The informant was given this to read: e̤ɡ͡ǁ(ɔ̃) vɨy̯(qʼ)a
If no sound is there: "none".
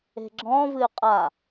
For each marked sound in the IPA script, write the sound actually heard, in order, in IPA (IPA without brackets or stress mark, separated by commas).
ɔ̃, qʼ